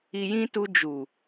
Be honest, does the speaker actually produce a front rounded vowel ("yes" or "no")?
no